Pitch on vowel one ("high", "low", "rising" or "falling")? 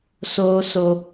high